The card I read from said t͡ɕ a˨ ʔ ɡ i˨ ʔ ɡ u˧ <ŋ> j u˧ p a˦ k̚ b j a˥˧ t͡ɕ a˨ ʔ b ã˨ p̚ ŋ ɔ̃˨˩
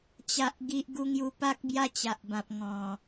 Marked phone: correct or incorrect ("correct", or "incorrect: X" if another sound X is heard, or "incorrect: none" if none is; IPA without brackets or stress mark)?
correct